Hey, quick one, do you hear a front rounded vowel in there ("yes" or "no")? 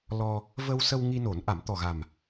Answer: no